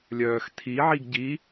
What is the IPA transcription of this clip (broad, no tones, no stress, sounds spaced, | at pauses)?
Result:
lʲ œː x tʰ i ʕ i ɡ ɟ i